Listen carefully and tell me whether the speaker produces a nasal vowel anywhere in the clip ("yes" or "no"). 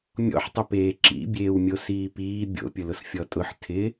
no